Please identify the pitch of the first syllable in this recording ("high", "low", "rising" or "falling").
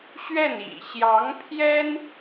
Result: falling